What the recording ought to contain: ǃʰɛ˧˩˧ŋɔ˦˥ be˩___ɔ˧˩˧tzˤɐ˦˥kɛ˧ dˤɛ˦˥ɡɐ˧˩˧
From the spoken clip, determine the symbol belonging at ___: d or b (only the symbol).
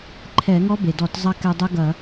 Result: d